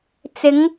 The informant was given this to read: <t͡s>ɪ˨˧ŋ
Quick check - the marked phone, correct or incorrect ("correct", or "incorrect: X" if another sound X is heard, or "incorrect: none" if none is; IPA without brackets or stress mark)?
correct